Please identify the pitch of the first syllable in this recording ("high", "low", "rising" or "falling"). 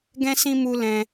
high